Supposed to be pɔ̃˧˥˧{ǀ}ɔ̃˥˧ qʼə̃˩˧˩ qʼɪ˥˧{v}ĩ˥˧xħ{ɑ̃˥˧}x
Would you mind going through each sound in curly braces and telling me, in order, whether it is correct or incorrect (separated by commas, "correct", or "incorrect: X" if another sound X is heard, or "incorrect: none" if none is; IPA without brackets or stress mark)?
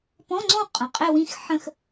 incorrect: ŋ͡ǀ, incorrect: w, incorrect: ə̃˥˧